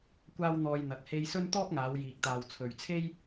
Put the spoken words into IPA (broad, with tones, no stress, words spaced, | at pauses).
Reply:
kʷaː˥wn̪ɔː˧jn̪ɐ˨˥t̚ he˧jsɵ˥n t̪ɔː˥p̚ŋaː˨˧w jiː˨k̚t̪aː˨wt͡sʰɵ˨ɥt͡sʰe˥j